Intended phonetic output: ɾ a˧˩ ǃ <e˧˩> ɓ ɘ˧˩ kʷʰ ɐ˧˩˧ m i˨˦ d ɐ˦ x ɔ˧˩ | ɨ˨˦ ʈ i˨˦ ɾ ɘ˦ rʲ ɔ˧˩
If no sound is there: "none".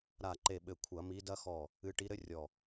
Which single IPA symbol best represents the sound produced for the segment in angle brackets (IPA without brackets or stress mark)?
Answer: e˧˩